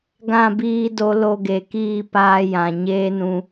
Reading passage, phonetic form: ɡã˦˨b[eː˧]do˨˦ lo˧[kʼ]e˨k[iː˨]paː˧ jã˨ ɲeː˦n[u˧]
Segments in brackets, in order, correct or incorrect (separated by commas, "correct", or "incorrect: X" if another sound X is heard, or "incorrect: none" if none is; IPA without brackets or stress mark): incorrect: iː˧, incorrect: ɡ, incorrect: iː˦˨, incorrect: ũ˧